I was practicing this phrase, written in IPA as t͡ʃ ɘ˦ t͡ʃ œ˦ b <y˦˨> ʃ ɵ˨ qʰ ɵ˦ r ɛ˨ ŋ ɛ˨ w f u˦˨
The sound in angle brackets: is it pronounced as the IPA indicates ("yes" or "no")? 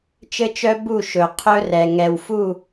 no